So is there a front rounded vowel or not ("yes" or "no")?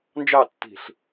no